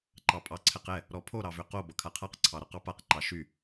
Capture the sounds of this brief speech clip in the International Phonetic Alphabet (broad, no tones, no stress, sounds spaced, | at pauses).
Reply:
ǃ ɑ pʼ ɑ ǀʰ ɛ q ɛ | ɾ ɔ pʰ o ɾ ɑ v ʏ q o b ʌ kʰ a qʰ a q ǀʰ ɑ ɾ ɔ q ɑ p a q ǃ ɑ ʃ y